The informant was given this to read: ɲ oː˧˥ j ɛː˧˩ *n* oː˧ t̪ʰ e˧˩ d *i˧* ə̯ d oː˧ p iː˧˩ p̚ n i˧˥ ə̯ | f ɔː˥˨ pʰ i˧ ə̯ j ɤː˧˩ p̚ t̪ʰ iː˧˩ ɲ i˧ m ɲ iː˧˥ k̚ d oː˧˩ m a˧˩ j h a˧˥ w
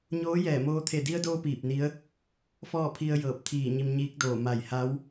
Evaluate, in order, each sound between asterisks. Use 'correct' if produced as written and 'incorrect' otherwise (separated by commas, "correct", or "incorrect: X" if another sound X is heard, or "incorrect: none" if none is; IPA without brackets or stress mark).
incorrect: m, correct